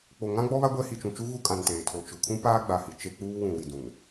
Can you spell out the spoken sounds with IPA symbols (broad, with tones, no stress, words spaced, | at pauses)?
k͡po˨ŋã˦ɡ͡bɔ˦βa˦ ɡʷɛ˦ hi˨t͡ʃũ˨t͡ʃu˦ ɣu˦kʼã˨n teː˨tʰo˨ t͡ʃʊ˨ kʰũ˦paː˦ɡ͡ba˨hi˨ t͡ʃe˦k͡puː˦wũ˨ wi˨dũ˨n